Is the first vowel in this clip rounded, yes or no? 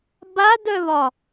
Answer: no